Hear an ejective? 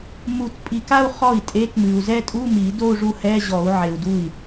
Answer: yes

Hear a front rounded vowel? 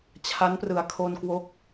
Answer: no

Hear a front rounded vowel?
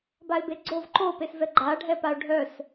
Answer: yes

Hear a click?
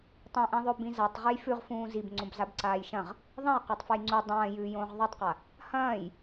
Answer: yes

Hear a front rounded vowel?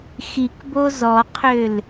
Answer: yes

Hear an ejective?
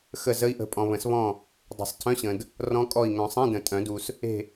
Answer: yes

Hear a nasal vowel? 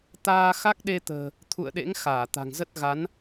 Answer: no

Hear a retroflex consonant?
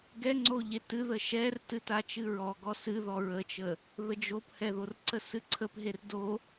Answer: no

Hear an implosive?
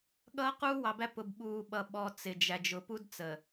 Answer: yes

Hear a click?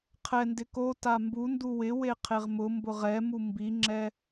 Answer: yes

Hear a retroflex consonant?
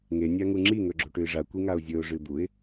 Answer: yes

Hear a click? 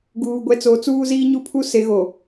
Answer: no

